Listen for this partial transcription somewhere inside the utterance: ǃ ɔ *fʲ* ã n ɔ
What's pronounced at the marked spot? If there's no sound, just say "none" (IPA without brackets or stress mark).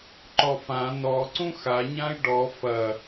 f